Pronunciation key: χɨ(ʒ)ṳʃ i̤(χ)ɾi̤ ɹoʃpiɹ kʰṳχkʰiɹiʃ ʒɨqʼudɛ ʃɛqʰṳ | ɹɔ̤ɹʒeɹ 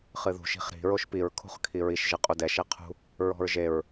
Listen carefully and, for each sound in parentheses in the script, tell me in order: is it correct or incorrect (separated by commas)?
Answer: incorrect, correct